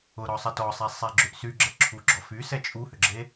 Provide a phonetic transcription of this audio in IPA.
ʊ ɾ ɔ sˤ ə t ɔ sˤ e sˤ e ɡ͡ǁ ʏ ʔ s y ɡ͡ǁ ə ǁʰ u ɡ͡ǁ ɔ f y s ɛ t͡ʃʼ u h ʏ ɡ͡ǁ e

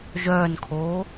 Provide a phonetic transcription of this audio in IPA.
ʒ œː n kʰ oː

